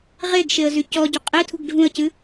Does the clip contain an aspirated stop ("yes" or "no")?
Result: yes